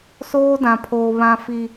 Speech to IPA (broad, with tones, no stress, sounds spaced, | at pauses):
s oː˦ d ã˨ pʰ oː˨ β ã˨ f i˨